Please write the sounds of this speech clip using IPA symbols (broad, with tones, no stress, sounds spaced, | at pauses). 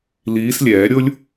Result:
l iː˨˦ s lʲ ɛː˨˩˦ ɾʲ o˦ lʲ